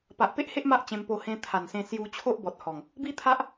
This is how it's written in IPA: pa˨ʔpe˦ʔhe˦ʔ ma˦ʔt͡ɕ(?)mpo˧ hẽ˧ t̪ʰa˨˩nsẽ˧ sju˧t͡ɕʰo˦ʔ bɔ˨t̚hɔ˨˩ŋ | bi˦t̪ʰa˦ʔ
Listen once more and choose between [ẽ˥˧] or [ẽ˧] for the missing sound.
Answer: ẽ˧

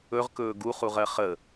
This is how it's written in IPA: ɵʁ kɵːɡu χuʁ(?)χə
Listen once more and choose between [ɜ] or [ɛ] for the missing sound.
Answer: ɜ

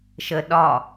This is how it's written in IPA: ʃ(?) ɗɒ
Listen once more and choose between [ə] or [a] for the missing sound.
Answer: ə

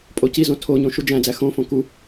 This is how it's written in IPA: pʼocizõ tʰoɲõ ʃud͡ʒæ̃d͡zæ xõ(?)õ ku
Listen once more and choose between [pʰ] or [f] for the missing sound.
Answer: f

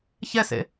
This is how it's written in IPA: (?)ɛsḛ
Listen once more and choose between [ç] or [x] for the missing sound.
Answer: ç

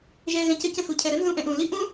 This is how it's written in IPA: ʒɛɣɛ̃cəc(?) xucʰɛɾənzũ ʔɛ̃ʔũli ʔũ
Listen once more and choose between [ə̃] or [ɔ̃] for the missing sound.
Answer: ə̃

